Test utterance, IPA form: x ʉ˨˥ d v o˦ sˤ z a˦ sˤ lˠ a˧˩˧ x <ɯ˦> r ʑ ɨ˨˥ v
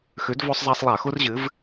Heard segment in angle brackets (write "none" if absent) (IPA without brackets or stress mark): u˦